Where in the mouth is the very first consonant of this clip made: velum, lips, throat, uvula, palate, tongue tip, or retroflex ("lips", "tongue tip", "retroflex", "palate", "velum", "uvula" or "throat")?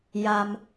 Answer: palate